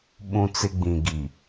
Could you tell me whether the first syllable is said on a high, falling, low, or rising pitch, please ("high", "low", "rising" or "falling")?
high